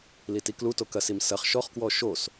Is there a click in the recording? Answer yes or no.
no